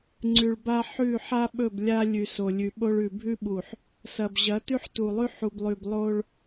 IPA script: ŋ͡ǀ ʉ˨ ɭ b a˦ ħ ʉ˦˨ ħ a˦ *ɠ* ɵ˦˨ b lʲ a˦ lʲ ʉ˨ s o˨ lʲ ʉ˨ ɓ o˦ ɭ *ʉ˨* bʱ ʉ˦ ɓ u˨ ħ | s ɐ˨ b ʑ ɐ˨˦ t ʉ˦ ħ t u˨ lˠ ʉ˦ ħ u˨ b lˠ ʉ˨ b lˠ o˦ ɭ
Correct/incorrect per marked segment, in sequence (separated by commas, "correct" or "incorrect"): incorrect, correct